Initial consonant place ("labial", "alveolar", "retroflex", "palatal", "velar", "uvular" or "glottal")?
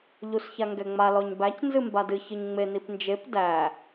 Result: palatal